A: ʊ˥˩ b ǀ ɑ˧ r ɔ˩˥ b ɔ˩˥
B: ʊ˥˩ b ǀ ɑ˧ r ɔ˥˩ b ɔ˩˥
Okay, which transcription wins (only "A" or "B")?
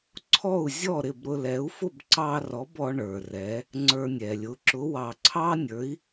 A